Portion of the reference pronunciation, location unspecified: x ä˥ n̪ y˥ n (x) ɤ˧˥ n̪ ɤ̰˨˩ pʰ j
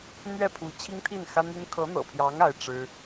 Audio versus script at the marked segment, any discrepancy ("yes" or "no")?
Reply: yes